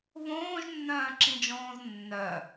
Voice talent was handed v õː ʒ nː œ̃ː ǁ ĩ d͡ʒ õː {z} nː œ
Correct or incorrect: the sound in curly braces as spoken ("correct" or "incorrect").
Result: correct